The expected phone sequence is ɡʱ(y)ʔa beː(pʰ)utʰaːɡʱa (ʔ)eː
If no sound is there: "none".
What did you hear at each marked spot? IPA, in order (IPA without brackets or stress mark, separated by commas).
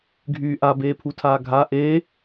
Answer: yː, pʰ, ʔ